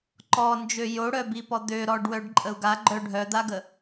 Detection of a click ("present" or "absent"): present